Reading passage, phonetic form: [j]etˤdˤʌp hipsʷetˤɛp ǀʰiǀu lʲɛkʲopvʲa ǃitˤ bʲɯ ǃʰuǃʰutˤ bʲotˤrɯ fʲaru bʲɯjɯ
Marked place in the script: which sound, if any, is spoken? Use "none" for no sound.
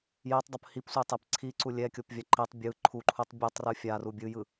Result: j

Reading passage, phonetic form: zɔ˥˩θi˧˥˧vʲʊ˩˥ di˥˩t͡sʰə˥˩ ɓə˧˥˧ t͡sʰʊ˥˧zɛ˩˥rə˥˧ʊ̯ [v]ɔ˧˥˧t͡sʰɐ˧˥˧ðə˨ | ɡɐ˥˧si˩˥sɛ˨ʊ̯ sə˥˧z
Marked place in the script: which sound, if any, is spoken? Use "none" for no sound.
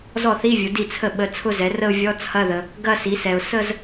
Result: vʲ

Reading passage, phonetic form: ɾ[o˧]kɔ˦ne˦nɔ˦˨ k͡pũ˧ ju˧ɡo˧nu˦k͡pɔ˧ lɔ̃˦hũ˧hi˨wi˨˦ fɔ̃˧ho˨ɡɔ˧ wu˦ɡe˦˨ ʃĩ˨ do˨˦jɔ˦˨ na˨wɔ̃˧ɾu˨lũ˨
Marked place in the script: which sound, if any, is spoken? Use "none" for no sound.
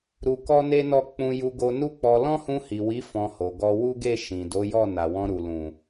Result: u˧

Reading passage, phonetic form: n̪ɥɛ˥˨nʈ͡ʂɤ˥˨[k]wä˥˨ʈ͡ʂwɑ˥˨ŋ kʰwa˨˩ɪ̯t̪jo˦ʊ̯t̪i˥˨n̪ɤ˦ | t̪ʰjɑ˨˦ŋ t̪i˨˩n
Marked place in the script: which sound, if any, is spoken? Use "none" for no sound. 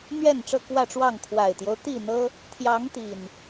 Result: k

